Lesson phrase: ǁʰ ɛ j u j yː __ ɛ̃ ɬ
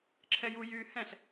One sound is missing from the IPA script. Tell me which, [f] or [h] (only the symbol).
h